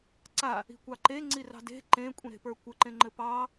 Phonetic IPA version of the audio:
ǀ a | i̤ kʷ ɑ ǃ e ŋ͡ǀ i r ɑ̤ d e̤ ǃ ẽ kʷʼ ĩ ɾ e̤ p ə˞ kʷ ɘ ǃ ẽ ŋ͡ǃ ɘ p ɑ

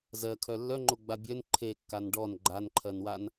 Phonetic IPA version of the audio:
z ɜ kʰ œ lː œ ŋ͡ǃ o ɡ͡b a bʲ œ n ǃʰ e kː a n ɖ ɔ n ɡ͡ǃ a n ǃʰ ɜ n w a n

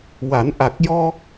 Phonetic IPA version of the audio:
w a˨˩˦ n ʔ a˨˩ k̚ j ɔ˧

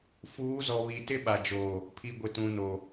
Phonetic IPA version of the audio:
f uː˨˦ z ɔ˨ β i˨ t ɪ˦ ɓ a˨ d͡ʒ oː˨ | pʰ i˨ ɡʷ ɪ˨ t ũ˨ n o˨

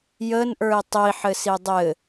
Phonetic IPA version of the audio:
j ə n ʔ ə˞ i̯ tˤ i ħ ɘ s i dˤ ɘ

